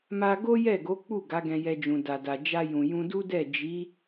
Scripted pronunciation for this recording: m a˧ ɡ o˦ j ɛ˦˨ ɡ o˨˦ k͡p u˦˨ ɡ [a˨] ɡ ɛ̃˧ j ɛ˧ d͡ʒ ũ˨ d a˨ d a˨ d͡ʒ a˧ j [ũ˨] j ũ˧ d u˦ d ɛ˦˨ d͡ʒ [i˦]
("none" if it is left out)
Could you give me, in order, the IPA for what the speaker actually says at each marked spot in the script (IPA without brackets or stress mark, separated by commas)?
a˨˦, ũ˨, i˨˦